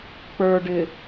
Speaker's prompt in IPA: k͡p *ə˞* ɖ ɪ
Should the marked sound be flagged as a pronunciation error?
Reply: no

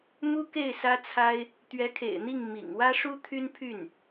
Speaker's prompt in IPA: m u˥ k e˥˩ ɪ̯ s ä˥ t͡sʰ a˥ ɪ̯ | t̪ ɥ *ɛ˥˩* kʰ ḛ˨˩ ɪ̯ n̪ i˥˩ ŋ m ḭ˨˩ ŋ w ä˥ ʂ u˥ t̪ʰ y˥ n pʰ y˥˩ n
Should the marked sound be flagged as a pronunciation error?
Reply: yes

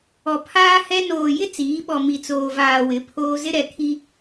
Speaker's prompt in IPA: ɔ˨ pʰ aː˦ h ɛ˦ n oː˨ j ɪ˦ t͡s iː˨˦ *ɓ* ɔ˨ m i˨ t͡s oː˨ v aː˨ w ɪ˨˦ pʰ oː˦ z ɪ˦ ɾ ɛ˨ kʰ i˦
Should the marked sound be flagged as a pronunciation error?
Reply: no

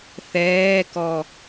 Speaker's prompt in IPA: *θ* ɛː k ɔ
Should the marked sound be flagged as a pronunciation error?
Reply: no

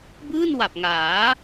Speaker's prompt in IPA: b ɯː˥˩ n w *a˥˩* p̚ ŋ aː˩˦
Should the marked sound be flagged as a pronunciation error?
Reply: yes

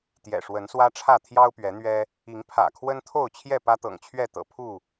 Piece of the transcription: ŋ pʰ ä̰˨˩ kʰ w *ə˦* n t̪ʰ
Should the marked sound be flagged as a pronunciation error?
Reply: no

